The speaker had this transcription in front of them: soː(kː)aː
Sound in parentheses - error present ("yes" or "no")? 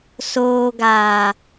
yes